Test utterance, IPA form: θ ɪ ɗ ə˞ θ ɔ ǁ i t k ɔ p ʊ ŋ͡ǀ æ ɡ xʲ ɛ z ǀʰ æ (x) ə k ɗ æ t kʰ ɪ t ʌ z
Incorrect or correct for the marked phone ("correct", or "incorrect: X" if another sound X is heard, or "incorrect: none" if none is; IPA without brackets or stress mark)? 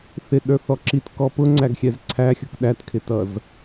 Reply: incorrect: xʲ